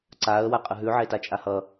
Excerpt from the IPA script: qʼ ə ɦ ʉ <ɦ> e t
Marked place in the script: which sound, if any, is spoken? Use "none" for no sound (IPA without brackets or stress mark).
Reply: ʕ